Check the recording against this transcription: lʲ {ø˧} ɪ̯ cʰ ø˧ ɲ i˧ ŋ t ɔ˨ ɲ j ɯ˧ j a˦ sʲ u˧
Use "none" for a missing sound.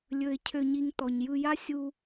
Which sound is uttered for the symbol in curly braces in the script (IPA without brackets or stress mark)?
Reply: ɵ˧